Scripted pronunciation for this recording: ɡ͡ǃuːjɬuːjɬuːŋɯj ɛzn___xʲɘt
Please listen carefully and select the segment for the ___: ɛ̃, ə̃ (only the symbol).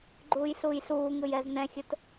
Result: ɛ̃